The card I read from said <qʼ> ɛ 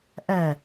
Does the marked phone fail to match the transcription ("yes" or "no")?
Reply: yes